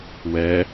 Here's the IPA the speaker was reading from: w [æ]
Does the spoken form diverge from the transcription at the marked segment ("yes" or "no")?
yes